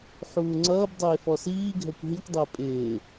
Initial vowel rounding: rounded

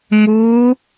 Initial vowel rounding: rounded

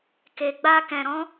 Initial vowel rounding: unrounded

